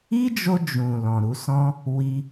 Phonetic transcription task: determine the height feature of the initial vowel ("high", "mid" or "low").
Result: high